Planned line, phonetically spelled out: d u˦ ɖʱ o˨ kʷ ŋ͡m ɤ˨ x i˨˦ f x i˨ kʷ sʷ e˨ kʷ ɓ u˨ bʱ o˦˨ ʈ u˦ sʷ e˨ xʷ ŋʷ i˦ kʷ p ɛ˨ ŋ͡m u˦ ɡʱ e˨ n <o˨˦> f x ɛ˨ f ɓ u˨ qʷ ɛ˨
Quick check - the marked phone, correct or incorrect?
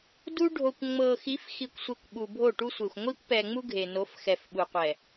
correct